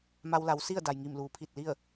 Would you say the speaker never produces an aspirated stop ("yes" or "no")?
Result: no